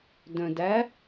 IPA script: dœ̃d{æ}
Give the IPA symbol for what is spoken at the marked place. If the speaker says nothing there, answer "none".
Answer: æ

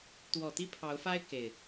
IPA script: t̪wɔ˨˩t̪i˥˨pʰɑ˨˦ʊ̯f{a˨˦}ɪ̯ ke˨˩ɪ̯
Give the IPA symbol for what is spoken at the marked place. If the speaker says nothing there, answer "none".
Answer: a˦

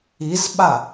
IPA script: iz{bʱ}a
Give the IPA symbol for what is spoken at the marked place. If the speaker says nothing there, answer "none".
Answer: ɓ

